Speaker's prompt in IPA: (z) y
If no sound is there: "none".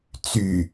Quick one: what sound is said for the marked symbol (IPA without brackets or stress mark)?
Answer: t͡s